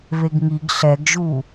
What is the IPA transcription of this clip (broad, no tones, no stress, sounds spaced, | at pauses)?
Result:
β e ɡ ŋ i ɡ ɬ ɛ ɡ ʒ u